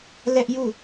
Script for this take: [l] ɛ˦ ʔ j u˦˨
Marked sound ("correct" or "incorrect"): correct